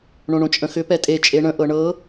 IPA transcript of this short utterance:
ɳõɳõt͡ʃʼə̃xʏ pɛtʼe t͡ʃʼeɳə̃ ʔɤɳɤ

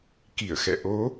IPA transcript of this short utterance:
ki˧˩ə̯xɛ̰˧˨ ʔo˨˦

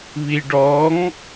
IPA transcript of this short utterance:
βiɖɔŋ

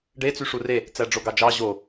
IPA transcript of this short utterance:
ɖe t͡syʂure | t͡sæɖ͡ʐoɡɑd͡ʒɑ ʑo

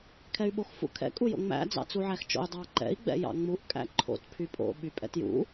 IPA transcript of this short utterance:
kʰɛy̯ɓoxfṵkʰɛ̰ kʼujo̰ŋ͡mæ̰ d͡zɑ̰t͡suʕæxt͡ʃo̰y̯ dˤɑǃɛ̰i̯ ɡ͡bɛ̰jɑ̰ŋ͡muʔ kʼæ̰ǃʰo̰t pʰypʼo̰ ɓypʼɛ̰tjṵ

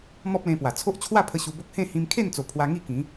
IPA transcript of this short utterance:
mɔ˦p̚lẽ˧ pwa˨˩ t͡sʰo˦ʔ t͡ɕʰwa˥˧pʰə˧ ɕu˧bo˦k̚ hẽ˥˧ hĩ˧mkʰe˥˧nt͡so˨˩ pʰwa˧ ŋi˥˧kĩ˨˦

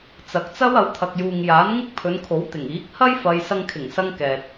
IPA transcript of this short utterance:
t͡sɐ˨k̚t͡sɐ˥w ɐ˨˧wt̪ʰɐ˨k̚juː˨ŋ jaː˨˥n ŋɪ˥k̚pʰɵ˨˧nkʰo˨˥w t̪ɪ˨˩ŋ iː˨˥k̚ hɐ˥jfɐ˨j sɐ˧ŋkʰɪ˨˩ŋsɐ˧ŋ kɛː˨t̚

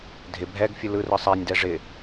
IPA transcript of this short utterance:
dʱɪ bʱɛɡ fʲɯlɯrɯ sˤɛnʲdɛ ʐɪ

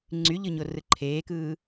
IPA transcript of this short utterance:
ŋ͡ǀyʎɯɲo rɯǃʰeːkɯː

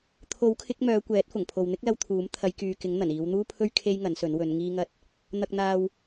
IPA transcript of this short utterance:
t̪ʰo˨˥wkʰɪ˨˥k̚ mœː˨˧kʷɛː˨˥t̚fʊ˨˩ŋ pʰo˨wn̪ɪ˥k̚lɐ˧wt̪ʰuː˨˥m t̪ʰɐ˨˧jkyː˨kɪ˨˥ŋn̪ɐ˨˩n iː˨˧wn̪uː˥pʰɵ˥ɥ kʰe˥jŋɐ˨˥nsɵ˨˥n wɵ˨˧n ŋiː˧ŋɐ˧t̚ | n̪ɐ˨k̚n̪aː˨w

